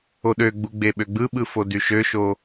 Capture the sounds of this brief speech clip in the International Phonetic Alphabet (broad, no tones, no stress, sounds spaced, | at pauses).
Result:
o ɗ ø ɡ͡b u ɡ͡b e ɓ ø ɡ͡b ɯ ɓ ɯ f o d y ʃ ø ʃ o